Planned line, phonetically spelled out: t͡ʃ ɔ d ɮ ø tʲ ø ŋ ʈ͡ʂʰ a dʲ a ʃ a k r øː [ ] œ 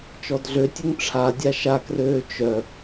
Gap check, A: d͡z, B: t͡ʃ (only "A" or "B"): B